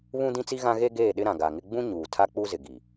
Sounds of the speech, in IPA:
βũ˦ dĩ˦t͡si˦ ɣã˦ɣe˦ɡeː˦˨ ɗɪ˦ɾã˨ɡa˨ŋɪ˦ ɡ͡bũ˦ ɲuː˨tʰa˦k͡pu˦zɪ˨ ɡi˨

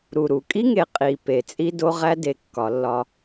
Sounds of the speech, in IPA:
ɾu˨ɾu˨ kʼi˦ŋe˨ qʼi˨ pe˨t͡sʼi˦do˦ʁæ˦ de˨ kːɒ˨˦lːɒ˦

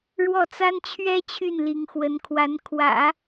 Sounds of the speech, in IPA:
ɻwɔ˥˩t͡sa˥nt͡ɕʰɥɛ˥ t͡ɕʰy˥˩nli˧˥ŋxwə˧˥nkʰwa˧˥n kʰwä̰˨˩˦

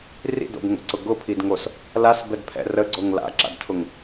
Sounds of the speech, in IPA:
rḭdo̰bŋə̰ǀʊ ɡʊpʰidŋos | lasbɛdpʰɛ̰ rəɡ͡ǀoŋ la̰ǁa̰dtʰʊŋ

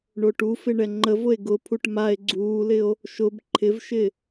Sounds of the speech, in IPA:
ɳoʈufɪ ɳɛŋ͡ǃəvʊe̯ ɡʊpʰuʈ mae̯ ɡ͡ǀuːlɪo̯ | ʃʊb ǃʰɪvʃɪ

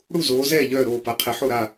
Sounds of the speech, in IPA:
ɽu˥˨ zoː˨˦ zɛː˥˨ ʎœː˥˨ɾoː˥˨ pa˨˦ qʰɛ˨˦ħo˥˨ɾa˥˨

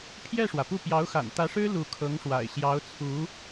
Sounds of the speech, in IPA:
pʰjɛ˥˩ʂwä˩pu˥˩ pjɑ˧˥ʊ̯xa̰˨˩nt̪ä˧˥ʂɻ̩˥ lu˧˥kʰɤ˧˥ŋʂwa̰˨˩ɪ̯ ɕjɑ˧˥ʊ̯t͡sʰu˧˥

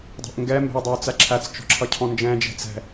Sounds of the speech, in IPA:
dˤɛ̤ʔŋɡɛ mbɛ̤ʊ̯dˤʌʊ̯t͡sæǁʰæt͡s t͡ʃɔ̤ǁʰʌcʰɔ̃nd͡ʒɛ̃ d͡ʒɛ̤t͡sɛ̤

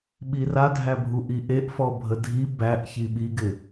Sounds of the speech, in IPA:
ɓiradʱæbʱu ʔiʔeʔ fɔbʱədʱi bæʔçi ɓiɡɪ

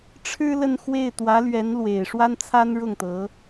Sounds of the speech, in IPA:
ʈ͡ʂʰɻ̩˥lə˥˧nxwe˥˩ɪ̯ t̪wä˧˥lɥɛ˧˥nlwe˨˩ɪ̯ ʂwa˥nt͡sʰa˥nɻʊ˥˩ŋt̪ɤ˧˥

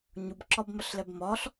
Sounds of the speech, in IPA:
ɲubǁɒbmɐɬlɛb mɒɬ

